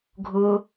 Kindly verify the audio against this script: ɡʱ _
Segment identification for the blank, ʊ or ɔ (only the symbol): ʊ